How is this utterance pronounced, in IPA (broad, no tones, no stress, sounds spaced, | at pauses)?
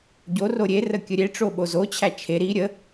ɟ o r o ɾʲ e r ə kʲ ə ɾʲ e ʈ͡ʂ o ɓ o z o t͡ɕʰ æ t͡ʃʰ e ɾ i ɾʲ ə